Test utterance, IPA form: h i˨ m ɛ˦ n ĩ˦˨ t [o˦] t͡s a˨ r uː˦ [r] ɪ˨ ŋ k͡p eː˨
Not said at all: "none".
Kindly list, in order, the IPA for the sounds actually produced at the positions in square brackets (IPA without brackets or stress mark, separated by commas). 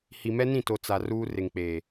o˨, r